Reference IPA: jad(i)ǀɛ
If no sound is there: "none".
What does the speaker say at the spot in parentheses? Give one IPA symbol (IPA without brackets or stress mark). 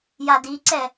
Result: i